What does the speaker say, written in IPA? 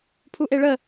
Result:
pʰ u ʔ e ɭ ə

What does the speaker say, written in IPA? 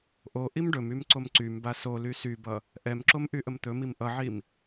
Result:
ʔ o ʔ i m ɖ ɵ m y m ǀ o m ǀ y m b a s o l y s y b ʌ | ʔ ɛ m ǁ o m ʔ y ʔ ə m t̪ ɵ m i m ʔ ʌ ʕ i m

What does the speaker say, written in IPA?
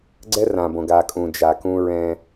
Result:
ɡ͡ǀ ɛ˦ r ã˨ b õ˨ ɡ a˨ kʼ ũ˨ d͡ʒ a˨ k ũ˦ ɹ ɛ̃˦

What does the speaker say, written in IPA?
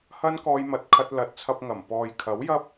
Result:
h ɐ˥ n k ɔː˧ j m ɐ˨ t̚ kʰ ɐ˧ t̚ l ɐ˨˥ t̚ t͡sʰ ɐ˧ p̚ ŋ ɐ˨˩ m p ɔː˨ j kʰ ɐ˨˥ w j ɐ˥ p̚

